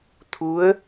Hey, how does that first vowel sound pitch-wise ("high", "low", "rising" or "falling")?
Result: rising